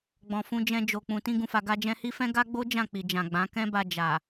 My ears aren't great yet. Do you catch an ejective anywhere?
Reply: no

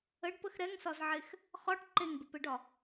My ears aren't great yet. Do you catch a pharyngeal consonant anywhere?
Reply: yes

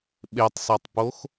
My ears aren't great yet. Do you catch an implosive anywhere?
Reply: yes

